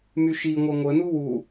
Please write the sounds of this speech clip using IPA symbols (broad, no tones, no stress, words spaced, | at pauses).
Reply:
myʃiŋʷœ ŋʷənu wu